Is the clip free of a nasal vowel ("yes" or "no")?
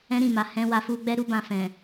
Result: no